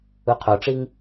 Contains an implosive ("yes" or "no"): no